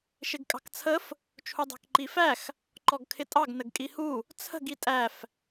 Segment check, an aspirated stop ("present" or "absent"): present